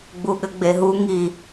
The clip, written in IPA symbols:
ɡ͡b u ɠ ɘ ɡ͡b e ɦ u ŋ i

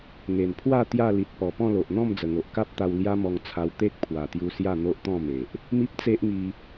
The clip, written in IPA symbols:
ŋ e˨˩ n pʰ w a˥˧ t̪ j a˥˧ l i˨ t̚ p ɔ˨˩ p ɔ̃˥˧ l o˨ ʔ n̪ ɔ̃˥˧ m d͡z ə˨˩ ŋ o˨ ʔ k a˦ p̚ t̪ a˧ w l j a˦ m ɔ˧ ŋ t͡sʰ a˧ w t̪ e˦ k̚ pʰ w a˨˩ t̪ j u˧ s j a˥˧ n̪ o˦ ʔ t̪ ɔ̃˥˧ m e˨ ʔ | m i˦ p̚ t͡s e˦ ʔ ŋ i˧

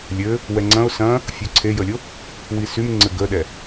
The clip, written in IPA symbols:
lʲ ɘ | w ɛ ŋ͡ǀ ɐ̃ ʊ̯ s ɐ̃ | fʲ u ǀʰ e j ə lʲ o | w i s y m ŋ͡ǀ ɘ ɡ ə ɗ ɛ

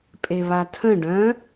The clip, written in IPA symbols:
pʼ e β a tʰ ə̃ ɖ œ̃

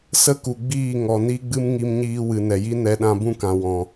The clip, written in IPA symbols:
s ə˦ k u˨ ɡ͡b iː˦˨ ŋ ɔ˨ n i˦ ɡ͡b ɨ˦ m ŋ i˧ m ɲ iː˧ w ɨ˨ n ɛ˨ j i˦ n ɛ˦ ɗ ã˧ b ũ˦ k ã˨ w ɔ̃˨

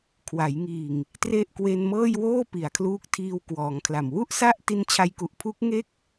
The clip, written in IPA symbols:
kʰ w a˩˦ j ŋ iː˨˩ ŋ | t r e˥˩ ʔ k w e˧ n m ɤː˥˩ j w oː˥˩ p i˩˦ a̯ kʰ l uː˦˥ k̚ tʰ iː˧ w k w ɔː˩˦ ŋ kʰ l a˨˩ m w u˥˩ ʔ s a˥˩ ʔ t i˦˥ n t͡ɕʰ a˧ j k u˨˩ ʔ pʰ uː˦˥ k̚ ŋ e˥˩ k̚

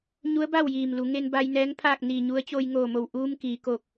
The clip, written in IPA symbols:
ɲ u˧˥ ə̯ b a˥˨ w j iː˧˩ m l u˩˧ ŋ e˧ n b a˧ j n ɛː˧˥ ŋ pʰ aː˥˨ k̚ n iː˧˩ ɲ u˧˥ ə̯ t͡ɕ oː˧ j ŋ oː˧˩ m o˧˩ w ʔ uː˧ m k iː˩˧ k oː˧˩ k̚

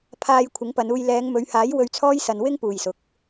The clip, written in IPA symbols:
pʰ aː˧ j kʷʰ ɪ˨˥ ŋ p ɐ˨˧ n uː˧ j l ɛː˨˧ ŋ m ɵ˨˧ ɥ h aː˨˥ j w ɵ˧ ɥ t͡sʰ ɔː˥ j s ɐ˧ n w ɪ˥ ŋ p uː˨ j s ʊ˨˥ k̚

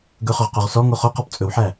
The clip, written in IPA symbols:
ɡ ɵ χ ɵ ʁ q o ʁ s ɔ ŋ o χ o q ɔ p t͡sʼ ɵ w ħ æ

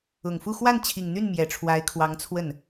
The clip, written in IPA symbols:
ʊ˨˩ ŋ f u˥˧ x w a˥˩ n t͡ɕʰ i˨˩ ŋ n̪ y˥˩ n m j ɛ˨˩ ʈ͡ʂʰ w a˧˥ ɪ̯ kʰ w ɑ˧˥ ŋ t͡sʰ w ə˥˩ n

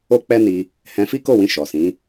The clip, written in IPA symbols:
o˦ k͡p ɛ˦ n i˧ | h ɛ̃˧ f i˦ k o˦˨ w ĩ˧ ʃ ɔ˨ s ĩ˨˦

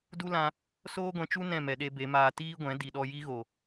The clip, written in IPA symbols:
d u˦ l ã˧ | s oː˦ ɡʷ ɛ̃˧ t͡ʃ u˦ n ɛ̃˦˨ m ɛ˨ ɗ e˧ b e˨˦ m aː˧ t iː˦ ɡʷ ɛ̃˨˦ d i˨ ɗ ɔ˧ j i˦ ɣ o˨

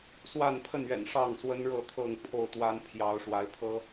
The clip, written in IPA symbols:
s w a˥˨ n pʰ ə˥˨ n ɥ ɛ̰˨˩ n ʂ ɑ˥˨ ŋ s w ə˦ n ɻ ɤ˥˨ t̪ʰ ɤ˥˨ ŋ pʰ o˥˨ ʊ̯ t̪ w a˦ n pʰ j ɑ˨˦ ʊ̯ ʂ w a˨˦ ɪ̯ pʰ ɤ˦

